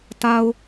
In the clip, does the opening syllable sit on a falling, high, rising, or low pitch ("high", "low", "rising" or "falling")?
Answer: low